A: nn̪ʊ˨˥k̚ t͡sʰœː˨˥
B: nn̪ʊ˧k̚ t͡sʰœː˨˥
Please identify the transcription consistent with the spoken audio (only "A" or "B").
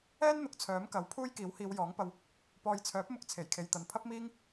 A